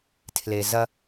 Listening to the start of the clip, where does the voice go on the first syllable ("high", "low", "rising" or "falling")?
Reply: low